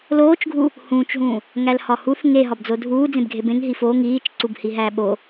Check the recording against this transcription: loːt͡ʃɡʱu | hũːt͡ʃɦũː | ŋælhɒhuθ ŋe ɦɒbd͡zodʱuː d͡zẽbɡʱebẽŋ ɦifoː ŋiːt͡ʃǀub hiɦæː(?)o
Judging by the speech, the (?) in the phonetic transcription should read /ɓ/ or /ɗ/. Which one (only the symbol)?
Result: ɓ